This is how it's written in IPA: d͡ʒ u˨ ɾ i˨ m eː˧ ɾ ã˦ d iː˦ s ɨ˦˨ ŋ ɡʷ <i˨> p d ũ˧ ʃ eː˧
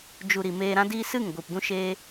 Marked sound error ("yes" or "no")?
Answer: no